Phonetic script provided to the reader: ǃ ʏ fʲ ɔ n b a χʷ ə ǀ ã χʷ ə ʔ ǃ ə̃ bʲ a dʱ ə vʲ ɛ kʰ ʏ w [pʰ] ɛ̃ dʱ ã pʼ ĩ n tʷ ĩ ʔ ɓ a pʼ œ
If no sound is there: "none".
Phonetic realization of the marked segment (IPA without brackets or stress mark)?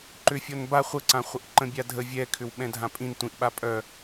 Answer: ɓ